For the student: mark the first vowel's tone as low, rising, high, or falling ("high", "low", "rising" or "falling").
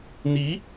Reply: rising